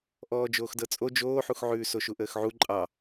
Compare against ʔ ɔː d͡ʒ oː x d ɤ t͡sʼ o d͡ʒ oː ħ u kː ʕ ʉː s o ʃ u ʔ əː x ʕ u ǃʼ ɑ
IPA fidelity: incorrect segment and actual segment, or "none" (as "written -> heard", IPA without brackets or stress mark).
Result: kː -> x